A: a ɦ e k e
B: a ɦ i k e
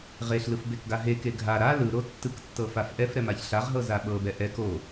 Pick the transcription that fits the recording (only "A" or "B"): A